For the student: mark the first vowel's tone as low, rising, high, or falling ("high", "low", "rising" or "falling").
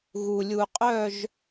low